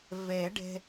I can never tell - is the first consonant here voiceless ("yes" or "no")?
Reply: no